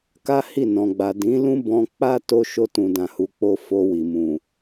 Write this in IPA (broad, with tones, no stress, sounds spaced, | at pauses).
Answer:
k a˦ h i˦˨ n ɔ̃˨ ɡ͡b a˨ d ĩ˨˦ l ũ˦ b ɔ̃˧ k͡p a˦ t o˦ ʃ o˦ t ũ˧ d ã˧ h u˧ k͡p o˦ f o˧ w i˨ m ũ˨